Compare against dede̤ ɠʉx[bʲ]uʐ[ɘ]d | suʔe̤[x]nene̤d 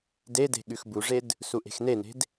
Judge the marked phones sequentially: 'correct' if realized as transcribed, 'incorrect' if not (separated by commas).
incorrect, incorrect, correct